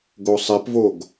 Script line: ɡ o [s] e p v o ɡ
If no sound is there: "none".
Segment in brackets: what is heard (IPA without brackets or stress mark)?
sˤ